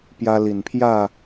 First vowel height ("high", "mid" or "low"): low